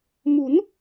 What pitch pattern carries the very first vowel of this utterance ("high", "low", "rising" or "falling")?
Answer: rising